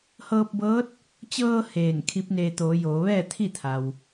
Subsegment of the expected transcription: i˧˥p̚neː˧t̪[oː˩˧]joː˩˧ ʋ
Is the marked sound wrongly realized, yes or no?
no